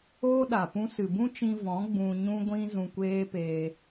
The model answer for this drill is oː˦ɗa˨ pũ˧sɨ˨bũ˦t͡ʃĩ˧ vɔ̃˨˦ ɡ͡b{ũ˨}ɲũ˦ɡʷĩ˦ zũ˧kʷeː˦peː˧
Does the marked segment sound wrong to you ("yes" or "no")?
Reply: yes